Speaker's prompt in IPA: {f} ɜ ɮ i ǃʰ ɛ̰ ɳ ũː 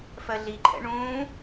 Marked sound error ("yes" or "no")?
no